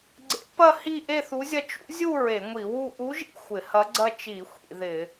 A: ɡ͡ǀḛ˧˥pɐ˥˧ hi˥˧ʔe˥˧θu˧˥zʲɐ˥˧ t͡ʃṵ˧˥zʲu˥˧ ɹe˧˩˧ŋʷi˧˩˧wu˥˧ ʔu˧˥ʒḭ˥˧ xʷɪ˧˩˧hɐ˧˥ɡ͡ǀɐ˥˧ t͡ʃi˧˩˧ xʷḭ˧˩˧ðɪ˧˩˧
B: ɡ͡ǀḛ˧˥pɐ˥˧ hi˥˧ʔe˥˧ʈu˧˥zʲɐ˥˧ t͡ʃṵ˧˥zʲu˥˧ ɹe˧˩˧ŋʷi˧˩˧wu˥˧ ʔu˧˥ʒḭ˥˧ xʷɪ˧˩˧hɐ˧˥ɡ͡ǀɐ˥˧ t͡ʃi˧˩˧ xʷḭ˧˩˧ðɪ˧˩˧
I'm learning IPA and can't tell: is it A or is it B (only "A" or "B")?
A